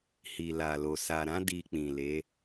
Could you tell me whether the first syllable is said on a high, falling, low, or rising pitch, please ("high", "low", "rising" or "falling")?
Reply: low